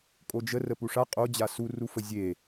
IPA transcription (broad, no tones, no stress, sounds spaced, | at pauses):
kʼ o d͡ʒ ə r ə p u ʂ a qʼ o d͡ʑ a s u r u f ə zʲ e